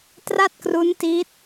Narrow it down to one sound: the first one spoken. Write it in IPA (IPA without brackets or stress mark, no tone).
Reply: t